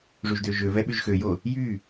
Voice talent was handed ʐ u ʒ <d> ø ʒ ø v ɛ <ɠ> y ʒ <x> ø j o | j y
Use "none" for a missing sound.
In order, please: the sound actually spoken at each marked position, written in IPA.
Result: d, ɓ, x

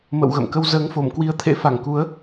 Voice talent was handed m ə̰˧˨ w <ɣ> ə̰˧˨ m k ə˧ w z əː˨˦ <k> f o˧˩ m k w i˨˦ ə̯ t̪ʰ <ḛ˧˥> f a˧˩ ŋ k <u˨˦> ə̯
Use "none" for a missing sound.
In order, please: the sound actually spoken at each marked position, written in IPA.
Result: ɣ, ŋ, ḛ˧˥, u˨˦

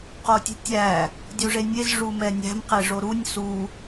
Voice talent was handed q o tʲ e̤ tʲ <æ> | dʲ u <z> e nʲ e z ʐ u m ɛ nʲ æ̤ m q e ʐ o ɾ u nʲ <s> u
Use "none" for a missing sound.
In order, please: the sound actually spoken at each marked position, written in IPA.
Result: æ, ʐ, s

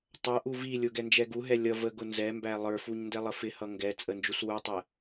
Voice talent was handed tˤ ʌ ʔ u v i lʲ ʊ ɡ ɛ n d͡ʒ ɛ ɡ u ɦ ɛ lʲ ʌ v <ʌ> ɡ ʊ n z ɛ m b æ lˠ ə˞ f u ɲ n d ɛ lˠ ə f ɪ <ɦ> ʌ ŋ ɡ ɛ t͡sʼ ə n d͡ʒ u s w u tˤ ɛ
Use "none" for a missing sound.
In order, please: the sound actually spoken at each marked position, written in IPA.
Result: ə, h

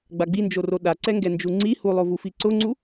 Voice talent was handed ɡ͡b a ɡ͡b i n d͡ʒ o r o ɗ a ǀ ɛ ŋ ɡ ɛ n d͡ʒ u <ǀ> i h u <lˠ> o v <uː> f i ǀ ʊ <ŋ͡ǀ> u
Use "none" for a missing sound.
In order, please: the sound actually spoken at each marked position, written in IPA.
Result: ŋ͡ǀ, lˠ, u, ŋ͡ǀ

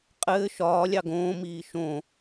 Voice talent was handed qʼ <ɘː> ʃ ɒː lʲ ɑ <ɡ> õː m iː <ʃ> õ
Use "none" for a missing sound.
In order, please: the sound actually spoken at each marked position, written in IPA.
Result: ɘː, ɡ, ʃ

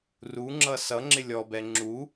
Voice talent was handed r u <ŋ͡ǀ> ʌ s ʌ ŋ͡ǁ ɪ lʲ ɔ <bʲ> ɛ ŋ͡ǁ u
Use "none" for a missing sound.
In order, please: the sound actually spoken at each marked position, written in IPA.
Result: ŋ͡ǁ, b

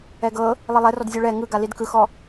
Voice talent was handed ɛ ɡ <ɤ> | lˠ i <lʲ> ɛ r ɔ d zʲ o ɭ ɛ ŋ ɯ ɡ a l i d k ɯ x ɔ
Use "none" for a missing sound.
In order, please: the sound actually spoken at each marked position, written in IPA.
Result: ɤ, lˠ

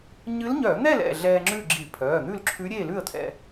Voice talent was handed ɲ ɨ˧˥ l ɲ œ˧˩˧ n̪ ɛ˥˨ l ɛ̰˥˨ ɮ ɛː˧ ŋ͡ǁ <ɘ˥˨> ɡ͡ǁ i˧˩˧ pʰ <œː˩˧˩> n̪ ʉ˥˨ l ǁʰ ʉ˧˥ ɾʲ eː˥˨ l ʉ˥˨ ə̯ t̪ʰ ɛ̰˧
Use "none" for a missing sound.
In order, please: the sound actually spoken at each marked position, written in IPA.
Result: ʉ˥˨, œː˩˧˩

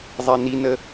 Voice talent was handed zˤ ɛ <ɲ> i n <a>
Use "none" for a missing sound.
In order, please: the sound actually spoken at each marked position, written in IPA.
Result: n, ə

